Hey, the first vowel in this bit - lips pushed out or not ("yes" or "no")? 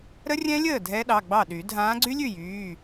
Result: no